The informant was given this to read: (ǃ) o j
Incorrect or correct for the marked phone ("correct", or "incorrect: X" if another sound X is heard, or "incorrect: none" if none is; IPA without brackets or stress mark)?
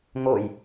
incorrect: ŋ